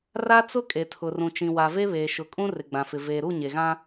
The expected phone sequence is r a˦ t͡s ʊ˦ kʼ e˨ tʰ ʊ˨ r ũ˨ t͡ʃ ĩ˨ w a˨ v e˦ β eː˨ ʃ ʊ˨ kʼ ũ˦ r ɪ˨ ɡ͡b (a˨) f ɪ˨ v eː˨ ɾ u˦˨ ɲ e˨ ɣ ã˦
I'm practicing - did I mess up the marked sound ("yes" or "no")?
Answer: yes